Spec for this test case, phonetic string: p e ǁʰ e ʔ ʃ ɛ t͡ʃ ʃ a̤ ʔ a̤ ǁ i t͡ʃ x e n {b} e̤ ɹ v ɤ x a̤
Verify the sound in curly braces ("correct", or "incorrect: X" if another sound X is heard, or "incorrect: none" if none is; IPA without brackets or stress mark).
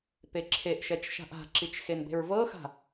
correct